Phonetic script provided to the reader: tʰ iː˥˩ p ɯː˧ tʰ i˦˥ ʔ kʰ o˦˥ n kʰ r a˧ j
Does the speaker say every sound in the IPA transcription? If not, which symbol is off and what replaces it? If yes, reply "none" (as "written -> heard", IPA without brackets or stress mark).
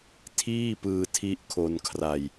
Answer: o˦˥ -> o˧